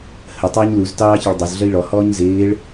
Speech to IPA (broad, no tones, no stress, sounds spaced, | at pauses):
h ə tˤ əː ɲ l u z t ɑː ç ɪ ɭ dˤ o z ɮ ə i̯ ɭ ɔ h ɔː ɲ z ɪː ɭ